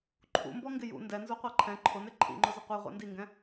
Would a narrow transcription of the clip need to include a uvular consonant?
yes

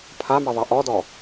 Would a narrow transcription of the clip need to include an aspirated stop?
yes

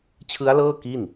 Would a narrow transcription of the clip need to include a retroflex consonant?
no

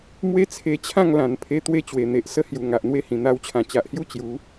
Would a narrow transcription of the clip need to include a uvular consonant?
no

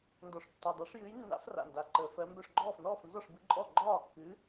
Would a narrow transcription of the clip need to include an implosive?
no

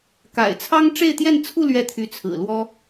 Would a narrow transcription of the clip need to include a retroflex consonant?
yes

